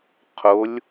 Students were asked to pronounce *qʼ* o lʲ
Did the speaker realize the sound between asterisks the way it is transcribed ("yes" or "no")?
no